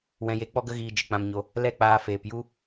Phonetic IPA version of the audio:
w ɛ̃˧ j e˧ k͡p ɔ˦ ɡ ə˦ ɣ iː˧ d͡ʒ ɨ˨ k͡p ã˧ m ɲ o˧ | l ɛ˦˨ k͡p aː˧ f eː˨ p j u˦

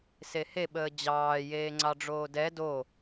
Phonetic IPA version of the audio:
s e h e ɓ əː d͡ʑ ɑː j eː ŋ͡ǀ ɑ ɖ͡ʐ oː d ɛ d o

